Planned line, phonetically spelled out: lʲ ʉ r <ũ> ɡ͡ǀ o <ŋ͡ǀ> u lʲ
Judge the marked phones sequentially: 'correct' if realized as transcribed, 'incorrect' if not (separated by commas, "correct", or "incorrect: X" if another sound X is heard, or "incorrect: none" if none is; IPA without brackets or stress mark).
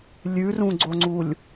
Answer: correct, correct